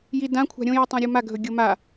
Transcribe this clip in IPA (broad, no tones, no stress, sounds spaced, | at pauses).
j i d ã kʷʰ a̤ ɾʲ õ j u tˤ õ ɾʲ u m a ɡʱ ɵ ɡʲ o m a